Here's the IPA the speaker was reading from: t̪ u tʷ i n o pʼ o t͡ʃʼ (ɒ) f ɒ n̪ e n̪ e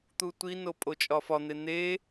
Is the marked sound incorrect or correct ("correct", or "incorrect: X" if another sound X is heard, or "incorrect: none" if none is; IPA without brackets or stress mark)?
correct